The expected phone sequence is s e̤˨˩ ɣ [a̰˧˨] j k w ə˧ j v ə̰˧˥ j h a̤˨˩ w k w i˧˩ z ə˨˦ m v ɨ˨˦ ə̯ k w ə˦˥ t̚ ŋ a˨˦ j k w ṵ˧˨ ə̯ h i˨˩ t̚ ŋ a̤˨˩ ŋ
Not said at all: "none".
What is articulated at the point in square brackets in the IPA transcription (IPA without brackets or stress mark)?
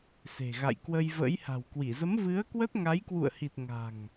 a̰˧˨